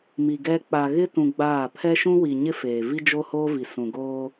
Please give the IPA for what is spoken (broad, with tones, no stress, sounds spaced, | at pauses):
m i˨ ɡ ɛ˦ k͡p a˨ ɣ ɪ˦ t ũ˨ ɡ͡b aː˦˨ pʰ ɛ˦ ʃ ũ˦ w i˨ ɲ ɪ˦ f eː˨ v i˦ d͡ʒ o˦ h oː˦ v i˨ s ũ˨ ɡ oː˦